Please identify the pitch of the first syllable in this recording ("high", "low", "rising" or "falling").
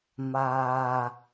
low